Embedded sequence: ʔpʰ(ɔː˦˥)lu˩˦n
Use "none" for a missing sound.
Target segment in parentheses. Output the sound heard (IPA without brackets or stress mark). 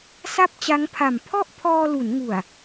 ɔː˧